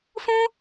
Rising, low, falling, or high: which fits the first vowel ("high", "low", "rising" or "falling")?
high